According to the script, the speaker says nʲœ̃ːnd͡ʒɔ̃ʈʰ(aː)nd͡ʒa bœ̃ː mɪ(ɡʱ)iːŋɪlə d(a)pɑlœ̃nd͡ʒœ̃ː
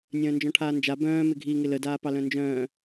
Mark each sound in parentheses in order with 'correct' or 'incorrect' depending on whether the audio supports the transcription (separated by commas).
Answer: correct, correct, incorrect